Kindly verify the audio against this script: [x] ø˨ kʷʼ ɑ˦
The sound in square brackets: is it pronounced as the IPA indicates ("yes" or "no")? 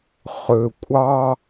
no